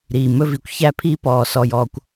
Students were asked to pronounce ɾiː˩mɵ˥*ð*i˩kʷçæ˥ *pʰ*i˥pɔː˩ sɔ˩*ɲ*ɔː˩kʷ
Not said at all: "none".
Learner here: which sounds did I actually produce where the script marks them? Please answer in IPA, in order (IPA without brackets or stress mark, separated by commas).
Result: v, pʰ, j